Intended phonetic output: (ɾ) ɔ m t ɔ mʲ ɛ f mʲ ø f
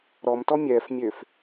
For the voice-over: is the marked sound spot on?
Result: yes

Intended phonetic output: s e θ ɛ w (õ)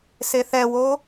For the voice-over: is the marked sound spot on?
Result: no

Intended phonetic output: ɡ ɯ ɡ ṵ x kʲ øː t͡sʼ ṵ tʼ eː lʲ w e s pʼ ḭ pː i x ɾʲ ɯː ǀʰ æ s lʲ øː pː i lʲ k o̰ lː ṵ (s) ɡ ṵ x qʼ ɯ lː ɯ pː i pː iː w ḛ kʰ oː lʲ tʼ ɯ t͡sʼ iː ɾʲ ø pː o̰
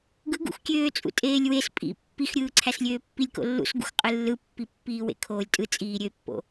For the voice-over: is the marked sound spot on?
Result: yes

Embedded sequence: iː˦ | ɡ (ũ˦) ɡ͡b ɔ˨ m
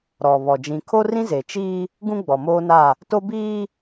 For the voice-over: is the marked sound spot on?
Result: yes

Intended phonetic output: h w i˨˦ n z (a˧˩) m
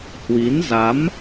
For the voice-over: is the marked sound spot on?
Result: no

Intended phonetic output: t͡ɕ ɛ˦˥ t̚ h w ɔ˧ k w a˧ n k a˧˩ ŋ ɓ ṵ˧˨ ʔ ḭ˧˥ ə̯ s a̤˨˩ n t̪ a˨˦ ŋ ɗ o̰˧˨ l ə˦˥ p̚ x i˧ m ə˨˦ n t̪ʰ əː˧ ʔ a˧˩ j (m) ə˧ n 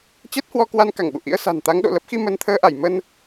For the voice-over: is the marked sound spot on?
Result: yes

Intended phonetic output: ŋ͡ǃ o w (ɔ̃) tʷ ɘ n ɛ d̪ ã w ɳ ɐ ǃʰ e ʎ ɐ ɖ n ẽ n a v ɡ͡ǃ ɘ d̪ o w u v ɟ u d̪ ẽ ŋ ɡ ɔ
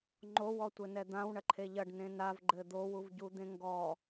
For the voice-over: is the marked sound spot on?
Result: no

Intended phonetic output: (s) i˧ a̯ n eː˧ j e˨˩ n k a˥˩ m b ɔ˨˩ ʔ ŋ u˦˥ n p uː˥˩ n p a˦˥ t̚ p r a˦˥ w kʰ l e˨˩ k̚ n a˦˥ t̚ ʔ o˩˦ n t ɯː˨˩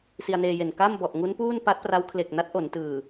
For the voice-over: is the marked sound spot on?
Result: yes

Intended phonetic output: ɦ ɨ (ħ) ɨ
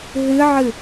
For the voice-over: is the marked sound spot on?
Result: no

